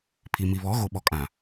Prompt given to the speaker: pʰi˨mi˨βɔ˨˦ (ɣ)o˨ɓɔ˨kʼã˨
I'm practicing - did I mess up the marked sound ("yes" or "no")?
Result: no